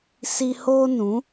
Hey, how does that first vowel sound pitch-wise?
high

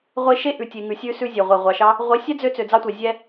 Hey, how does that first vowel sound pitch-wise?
high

